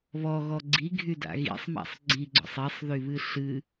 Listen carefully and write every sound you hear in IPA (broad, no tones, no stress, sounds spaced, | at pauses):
β ɔ ɣ ɔ ɡ͡ǀ i ɡʱ y d a̰ ɣ ḭ sˤ m a̰ sˤ ɡ͡ǀ i ɡ͡ǀ ɔ̰ sˤ i sˤ ð y β ɨ ɬ ɨ